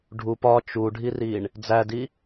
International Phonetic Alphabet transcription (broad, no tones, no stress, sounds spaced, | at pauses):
ɖʱ u p ɒ t͡ʃ u ɖʱ i r i ɳ | d͡z æ d i